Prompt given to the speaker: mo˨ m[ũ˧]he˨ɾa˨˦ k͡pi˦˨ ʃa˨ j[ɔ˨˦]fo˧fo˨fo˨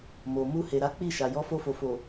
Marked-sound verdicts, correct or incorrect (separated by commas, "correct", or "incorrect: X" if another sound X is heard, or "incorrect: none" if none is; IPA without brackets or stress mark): incorrect: u˧, correct